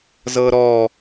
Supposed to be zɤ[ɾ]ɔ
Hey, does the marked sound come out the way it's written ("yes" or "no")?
yes